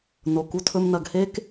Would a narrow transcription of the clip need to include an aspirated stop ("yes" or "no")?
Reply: yes